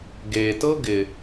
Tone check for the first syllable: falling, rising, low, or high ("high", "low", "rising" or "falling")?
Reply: low